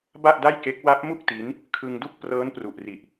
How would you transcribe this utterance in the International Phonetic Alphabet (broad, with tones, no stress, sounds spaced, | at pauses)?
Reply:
b a˥˩ ʔ d a˥˩ j k e˦˥ k̚ w a˦˥ p̚ m u˥˩ k̚ t i˦˥ n | kʰ ɯ˧ ŋ d u˥˩ k̚ p r ɤː˦˥ n p r u˨˩ ʔ r i˨˩ ʔ